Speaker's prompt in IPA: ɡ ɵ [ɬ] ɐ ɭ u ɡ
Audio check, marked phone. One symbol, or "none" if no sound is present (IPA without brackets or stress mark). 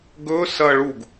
s